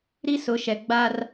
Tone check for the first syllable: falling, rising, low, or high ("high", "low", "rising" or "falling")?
high